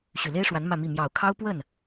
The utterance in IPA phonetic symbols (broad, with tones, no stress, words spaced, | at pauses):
ɕy˨˩le˥ɪ̯ʂwa˧˥n mä˥˧mi˥˩ mjɑ˨˩ʊ̯kʰɑ˥ʊ̯ pwə˥˩n